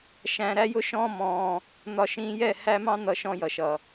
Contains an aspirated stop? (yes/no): no